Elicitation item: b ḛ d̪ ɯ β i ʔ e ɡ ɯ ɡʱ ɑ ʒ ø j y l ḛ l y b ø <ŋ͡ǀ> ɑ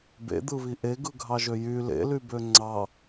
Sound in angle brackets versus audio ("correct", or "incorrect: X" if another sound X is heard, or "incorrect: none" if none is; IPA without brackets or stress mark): correct